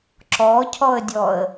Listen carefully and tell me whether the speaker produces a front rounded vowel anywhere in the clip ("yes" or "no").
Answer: no